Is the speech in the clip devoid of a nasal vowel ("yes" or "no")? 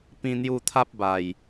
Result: no